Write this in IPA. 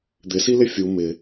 d̪ ɪ s i l ɪ fʲ u m ɪ

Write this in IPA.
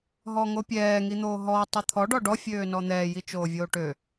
ɦ ɔ ŋ o pʲ ɛː ŋ i n̪ oː ɦ ɔː tˤ ɛ t̪ʰ ɔ ɖ ɔ ɖ ɔ fʲ øː n ɔ n̪ ɛː j i t͡ʃ oː vʲ oː ʈ ø

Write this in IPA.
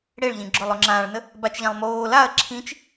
ɽ e ɭ ʎ ĩ ɡ͡ǁ o lˠ o ŋ͡ǁ ãː ɭ n ə | b a t͡ʃ ʎ ã lˠ m oː l a ɐ̯ ǁʰ ĩ t͡ʃ

